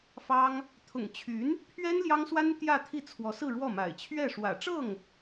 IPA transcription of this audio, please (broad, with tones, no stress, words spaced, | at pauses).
fɑ˥ŋ | t̪ʰʊ̰˨˩ŋt͡ɕʰy˧˥n | pʰɥɛ˥n ljɑ˥ŋswa˥n t̪jä˥˧t̪ʰi˥˩ t͡sʰwɔ˧˥sɹ̩˥˧ɻwɔ˥˩ma̰˨˩ɪ̯ t͡ɕʰɥɛ˥˩ ʂwä̰˨˩ʈ͡ʂɤ˥˩ŋ